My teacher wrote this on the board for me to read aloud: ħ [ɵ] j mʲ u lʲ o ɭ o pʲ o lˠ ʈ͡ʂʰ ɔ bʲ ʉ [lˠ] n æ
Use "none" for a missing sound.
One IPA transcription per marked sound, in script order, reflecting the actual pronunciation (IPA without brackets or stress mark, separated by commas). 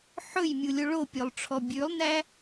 ɵ, lˠ